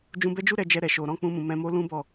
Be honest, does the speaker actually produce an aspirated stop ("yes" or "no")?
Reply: no